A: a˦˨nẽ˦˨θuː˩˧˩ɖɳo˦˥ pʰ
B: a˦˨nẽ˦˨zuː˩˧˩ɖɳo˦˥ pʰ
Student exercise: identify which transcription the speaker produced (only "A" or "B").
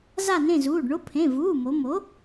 B